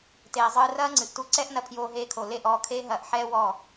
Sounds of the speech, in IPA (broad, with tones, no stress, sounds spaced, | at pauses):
t eː˨ zˤ ɨː˧ r ɐː˦ ŋ͡ǀ ɨ˨ ʔ t u˧ ǀ ɛ˦ ʔ n ɐ˧ pʰ j oː˧ ɦ eː˧ kʰ o˨ l e˦˨ ʔ ɔː˧ kʰ eː˦ ɦ ɐː˧ ʔ ħ ɛː˦ w ɔː˦˨